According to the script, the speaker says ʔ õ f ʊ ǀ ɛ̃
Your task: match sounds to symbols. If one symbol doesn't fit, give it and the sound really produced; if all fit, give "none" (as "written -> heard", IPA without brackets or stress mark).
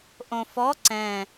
ʊ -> ɔ